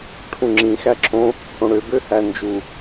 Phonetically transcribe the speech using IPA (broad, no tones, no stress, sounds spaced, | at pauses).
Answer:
ʈʰ ũ ŋ͡ǁ ĩ x æ ǁʰ õ | h õ ɽ ø b ø h æ n d͡ʒ u